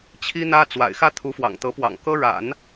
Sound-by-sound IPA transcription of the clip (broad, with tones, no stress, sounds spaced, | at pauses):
t͡ɕʰ i˥ n̪ ä˥ t͡s w a̰˨˩ ɪ̯ x ä˥ t̪ʰ u˧˥ f w ɑ̰˨˩ ŋ t̪ ɤ˧˥ p w ɑ̰˨˩ ŋ k ɤ˥ ɻ a̰˨˩˦ n